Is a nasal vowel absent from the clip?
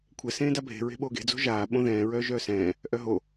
no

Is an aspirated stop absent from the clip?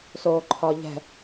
no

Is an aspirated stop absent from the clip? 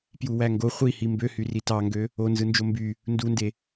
yes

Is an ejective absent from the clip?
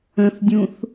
yes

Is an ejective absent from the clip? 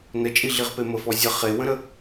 no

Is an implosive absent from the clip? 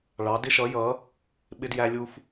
no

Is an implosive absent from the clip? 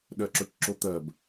no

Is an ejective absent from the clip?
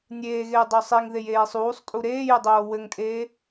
no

